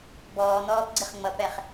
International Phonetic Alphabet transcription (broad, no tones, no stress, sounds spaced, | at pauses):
b ɔː n̪ ɔː p ɡ͡ǀ ɪ χ ŋ͡m ʌ p ɛ χ